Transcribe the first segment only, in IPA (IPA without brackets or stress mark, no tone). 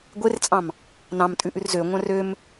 ɡʷ